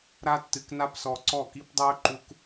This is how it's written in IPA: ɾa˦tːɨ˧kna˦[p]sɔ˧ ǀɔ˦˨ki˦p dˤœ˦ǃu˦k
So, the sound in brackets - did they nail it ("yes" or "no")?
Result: yes